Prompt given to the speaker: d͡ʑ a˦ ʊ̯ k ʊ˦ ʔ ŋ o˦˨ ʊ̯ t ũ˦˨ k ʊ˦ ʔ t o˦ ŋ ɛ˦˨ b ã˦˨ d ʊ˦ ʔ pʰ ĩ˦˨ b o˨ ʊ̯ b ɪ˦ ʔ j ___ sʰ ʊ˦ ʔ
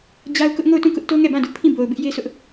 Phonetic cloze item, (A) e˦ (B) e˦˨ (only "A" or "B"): A